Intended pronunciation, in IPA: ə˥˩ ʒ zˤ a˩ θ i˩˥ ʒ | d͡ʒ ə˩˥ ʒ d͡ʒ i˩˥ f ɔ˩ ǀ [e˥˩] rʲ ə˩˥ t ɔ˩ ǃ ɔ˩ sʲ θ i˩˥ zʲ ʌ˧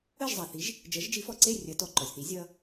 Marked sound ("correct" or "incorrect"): correct